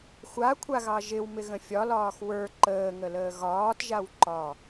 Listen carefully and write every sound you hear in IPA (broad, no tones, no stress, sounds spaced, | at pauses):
xʷ a kʷʰ a ɣ ɑ ʒ ɪ w m ɪ ɣ ə̃ fʲ ɒ l ɒː x w ə˞ ǃ əː ŋ ə l əː ɣ ɒː t ʒ a w ǃ ɒ